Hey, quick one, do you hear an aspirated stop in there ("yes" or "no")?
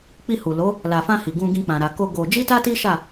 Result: no